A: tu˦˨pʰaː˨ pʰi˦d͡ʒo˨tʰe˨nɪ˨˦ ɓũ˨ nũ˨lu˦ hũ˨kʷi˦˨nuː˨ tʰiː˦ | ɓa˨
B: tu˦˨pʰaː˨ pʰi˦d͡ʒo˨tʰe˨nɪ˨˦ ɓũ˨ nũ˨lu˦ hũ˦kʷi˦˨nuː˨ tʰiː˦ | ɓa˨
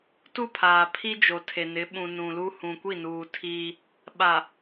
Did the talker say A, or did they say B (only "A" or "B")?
A